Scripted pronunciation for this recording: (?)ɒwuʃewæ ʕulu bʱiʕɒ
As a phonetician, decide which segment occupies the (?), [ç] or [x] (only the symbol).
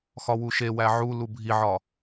x